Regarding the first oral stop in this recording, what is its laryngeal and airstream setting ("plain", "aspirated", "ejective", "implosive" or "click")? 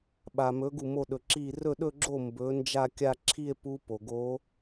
implosive